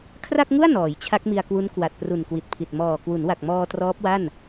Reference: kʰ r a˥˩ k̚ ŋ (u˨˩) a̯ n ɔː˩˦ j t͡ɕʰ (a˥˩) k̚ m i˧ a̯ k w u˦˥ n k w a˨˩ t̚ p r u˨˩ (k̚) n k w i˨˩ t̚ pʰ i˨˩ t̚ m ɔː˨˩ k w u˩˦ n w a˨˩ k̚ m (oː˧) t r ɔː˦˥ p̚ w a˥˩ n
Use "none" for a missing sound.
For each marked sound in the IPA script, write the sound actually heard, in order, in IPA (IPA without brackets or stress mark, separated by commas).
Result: u˥˩, a˦˥, none, ɔː˧